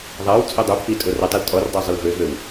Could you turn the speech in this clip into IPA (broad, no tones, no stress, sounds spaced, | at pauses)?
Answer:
ðˤ a w t͡sʼ œ dˤ u pʰ i tʼ o r ʊ tˤ ɛ l tʼ ɔ r dˤ e zˤ ʊ l v ø v ø w